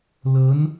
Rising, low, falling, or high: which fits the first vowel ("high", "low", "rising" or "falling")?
rising